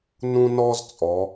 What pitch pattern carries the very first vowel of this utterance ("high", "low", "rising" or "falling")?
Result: high